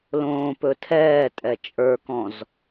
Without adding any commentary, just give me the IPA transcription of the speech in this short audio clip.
lõːpɵtʰɛːtʼɛ t͡ʃʼə˞kɔ̃z

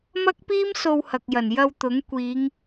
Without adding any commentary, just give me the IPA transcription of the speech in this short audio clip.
mɐ˥k̚piː˥m so˧whɐ˨k̚jɐ˨˩n jɐ˧wt̪ʊ˨˥ŋkʷiː˨˧ŋ

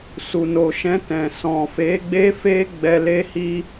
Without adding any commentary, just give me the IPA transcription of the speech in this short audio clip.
su˨no˨ʃɛ̃˧ tɛ̃˨ sɔ̃˨ fe˨˦ɡ͡be˦fe˦ ɡ͡bɛ˧le˦hi˦

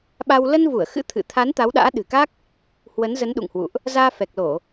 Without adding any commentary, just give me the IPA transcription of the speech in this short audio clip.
ɓa˧w lə˧nvu˧˩ə̯xɨ̰˧˥ t̪ʰɨ̰˧˨t̪ʰa˨˦n t̪a˨˦wɗa̰ː˧˥ɗɨ̤˨˩ka˦˥k̚ | hwə˨˦n zə˨˦nɗṵ˧˨ŋhwṵ˧˨ʔ | zaː˧fɛ˨˩k̚lo˧˩˨

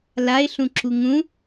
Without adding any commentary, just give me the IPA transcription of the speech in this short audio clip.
laɪ̯ɬũǁu ŋũ

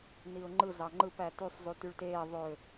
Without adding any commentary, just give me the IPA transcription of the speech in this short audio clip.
niʊ̯ŋ͡ǃɯ zɑŋ͡ǃɯp ætysˤ zutyɭteː ðˤø

